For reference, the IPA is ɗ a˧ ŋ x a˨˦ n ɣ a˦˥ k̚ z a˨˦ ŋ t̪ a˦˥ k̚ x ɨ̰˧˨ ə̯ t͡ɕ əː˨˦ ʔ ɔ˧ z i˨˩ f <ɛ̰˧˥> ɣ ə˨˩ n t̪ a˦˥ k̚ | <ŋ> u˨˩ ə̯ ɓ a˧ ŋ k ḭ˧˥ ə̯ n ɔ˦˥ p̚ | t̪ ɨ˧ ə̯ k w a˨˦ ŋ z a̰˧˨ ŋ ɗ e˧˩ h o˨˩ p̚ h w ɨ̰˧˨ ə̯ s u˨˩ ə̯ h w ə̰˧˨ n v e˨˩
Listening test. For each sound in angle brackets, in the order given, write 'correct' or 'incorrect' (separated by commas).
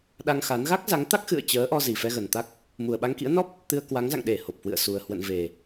incorrect, incorrect